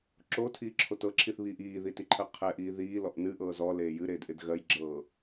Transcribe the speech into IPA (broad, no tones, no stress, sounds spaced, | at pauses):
ǁ o tʰ iː ǁʰ o t ɤ ǁʰ i θ β iː ʔ iː ð i t i ǃʰ ɜ qʰ ɛ ʔ iː ð iː l ɔ ʔ n ɨ ʔ ɤː z ɔ l eː j ɨ ɾ eː d ʔ ɪ d ɣ ɜ j ɡ͡ǁ ɤː